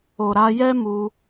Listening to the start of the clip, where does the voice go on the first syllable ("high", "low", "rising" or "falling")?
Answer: low